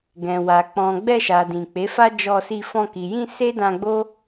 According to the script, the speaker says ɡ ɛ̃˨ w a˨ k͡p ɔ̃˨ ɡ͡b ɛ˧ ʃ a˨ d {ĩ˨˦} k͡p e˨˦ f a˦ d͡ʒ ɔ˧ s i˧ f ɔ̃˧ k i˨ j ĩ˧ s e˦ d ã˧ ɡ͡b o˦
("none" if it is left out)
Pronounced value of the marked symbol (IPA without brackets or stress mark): ĩ˨